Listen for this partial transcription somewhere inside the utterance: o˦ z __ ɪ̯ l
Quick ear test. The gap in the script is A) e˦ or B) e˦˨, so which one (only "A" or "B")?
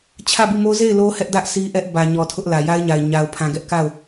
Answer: B